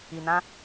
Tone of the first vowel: low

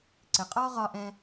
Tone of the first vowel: low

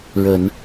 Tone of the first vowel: low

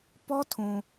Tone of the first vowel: high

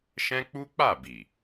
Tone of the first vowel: high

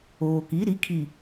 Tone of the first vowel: low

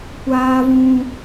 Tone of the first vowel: high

